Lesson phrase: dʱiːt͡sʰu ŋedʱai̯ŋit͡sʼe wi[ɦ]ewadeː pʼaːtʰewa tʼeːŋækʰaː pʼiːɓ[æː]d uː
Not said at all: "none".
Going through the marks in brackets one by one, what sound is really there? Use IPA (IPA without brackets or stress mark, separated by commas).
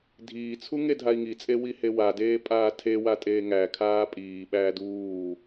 h, æː